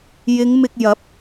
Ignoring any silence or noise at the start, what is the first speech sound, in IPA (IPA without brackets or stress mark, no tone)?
j